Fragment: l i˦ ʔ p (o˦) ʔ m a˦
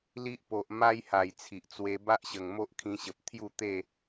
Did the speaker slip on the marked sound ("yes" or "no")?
yes